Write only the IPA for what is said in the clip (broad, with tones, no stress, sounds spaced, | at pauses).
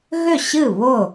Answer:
ɣ ʏ˥˩ ɕ ɨ˥˩ β ʊ˥˩